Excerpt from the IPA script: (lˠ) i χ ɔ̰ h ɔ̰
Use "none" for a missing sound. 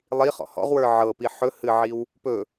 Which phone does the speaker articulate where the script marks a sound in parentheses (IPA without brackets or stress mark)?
lˠ